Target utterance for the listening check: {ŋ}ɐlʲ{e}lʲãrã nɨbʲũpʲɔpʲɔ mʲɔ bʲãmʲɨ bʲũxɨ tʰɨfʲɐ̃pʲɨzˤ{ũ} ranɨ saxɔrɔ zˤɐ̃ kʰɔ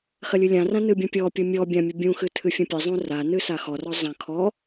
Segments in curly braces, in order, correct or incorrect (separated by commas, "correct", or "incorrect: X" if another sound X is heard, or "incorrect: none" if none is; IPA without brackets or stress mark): incorrect: x, incorrect: ɨ, correct